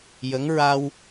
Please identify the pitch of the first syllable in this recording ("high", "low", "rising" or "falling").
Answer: rising